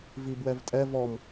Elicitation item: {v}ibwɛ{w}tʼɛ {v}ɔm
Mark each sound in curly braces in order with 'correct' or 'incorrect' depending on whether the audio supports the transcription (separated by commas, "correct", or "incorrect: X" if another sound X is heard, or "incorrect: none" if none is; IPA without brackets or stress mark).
correct, incorrect: v, correct